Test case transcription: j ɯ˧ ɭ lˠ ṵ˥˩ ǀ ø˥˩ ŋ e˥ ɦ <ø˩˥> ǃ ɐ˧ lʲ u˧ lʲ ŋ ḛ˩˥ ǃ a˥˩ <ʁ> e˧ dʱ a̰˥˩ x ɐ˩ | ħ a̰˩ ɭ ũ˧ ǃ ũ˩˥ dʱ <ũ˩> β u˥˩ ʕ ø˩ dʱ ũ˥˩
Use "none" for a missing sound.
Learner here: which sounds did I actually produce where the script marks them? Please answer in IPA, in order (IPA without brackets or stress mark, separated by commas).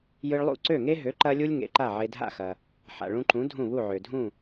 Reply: ø˩˥, ʕ, ũ˥˩